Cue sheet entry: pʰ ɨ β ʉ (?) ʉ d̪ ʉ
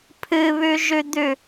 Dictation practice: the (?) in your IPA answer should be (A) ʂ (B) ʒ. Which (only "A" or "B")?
B